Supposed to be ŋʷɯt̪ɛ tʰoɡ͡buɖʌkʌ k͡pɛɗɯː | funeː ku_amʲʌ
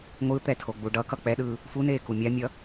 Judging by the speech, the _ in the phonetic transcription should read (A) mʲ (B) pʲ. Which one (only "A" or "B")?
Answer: A